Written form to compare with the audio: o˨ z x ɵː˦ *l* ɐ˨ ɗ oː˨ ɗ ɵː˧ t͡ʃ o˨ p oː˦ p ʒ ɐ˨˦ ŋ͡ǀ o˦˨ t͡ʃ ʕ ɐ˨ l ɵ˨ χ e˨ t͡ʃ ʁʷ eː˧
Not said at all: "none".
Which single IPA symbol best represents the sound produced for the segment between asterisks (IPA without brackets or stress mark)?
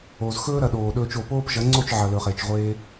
ɾ